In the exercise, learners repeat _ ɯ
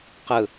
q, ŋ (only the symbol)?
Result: q